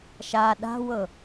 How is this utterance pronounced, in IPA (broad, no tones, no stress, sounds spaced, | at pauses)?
ʃ a ɗ a̤ w ɤ